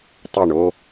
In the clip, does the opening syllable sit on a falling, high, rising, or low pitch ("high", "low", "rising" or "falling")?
falling